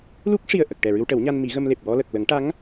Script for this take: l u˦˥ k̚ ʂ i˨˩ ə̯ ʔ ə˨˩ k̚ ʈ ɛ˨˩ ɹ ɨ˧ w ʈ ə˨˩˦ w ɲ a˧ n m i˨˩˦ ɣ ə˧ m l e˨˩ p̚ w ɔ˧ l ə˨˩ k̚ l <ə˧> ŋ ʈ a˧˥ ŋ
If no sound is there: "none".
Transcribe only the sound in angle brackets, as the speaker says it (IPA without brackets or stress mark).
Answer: ə˨˩˦